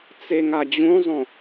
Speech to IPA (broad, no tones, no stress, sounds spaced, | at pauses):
t͡s e ŋ a d͡ʑ ũ zˤ õ